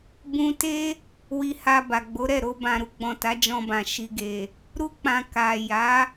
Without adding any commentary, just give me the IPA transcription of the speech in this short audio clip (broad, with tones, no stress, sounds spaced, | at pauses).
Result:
b ũ˧ t e˦ | w i˧ h a˧ b a˨ ɡ͡b o˨˦ ɾ ɛ˦˨ ɾ o˧ b ã˨ ɾ u˧ ɡ͡b ɔ̃˨ t a˨˦ d͡ʒ ɔ̃˧ b ã˨ ʃ i˨ ɡ e˨ | ɾ u˧ k͡p ã˨ k a˨ j a˨˦